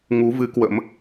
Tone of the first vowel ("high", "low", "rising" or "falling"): rising